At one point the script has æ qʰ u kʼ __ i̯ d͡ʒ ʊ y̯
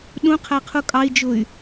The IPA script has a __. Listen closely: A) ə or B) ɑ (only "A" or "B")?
B